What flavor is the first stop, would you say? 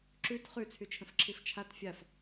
click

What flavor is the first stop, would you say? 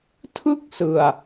aspirated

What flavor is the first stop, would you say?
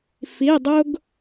plain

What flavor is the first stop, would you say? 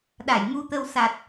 implosive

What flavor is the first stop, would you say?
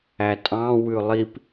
ejective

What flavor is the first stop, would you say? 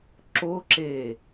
click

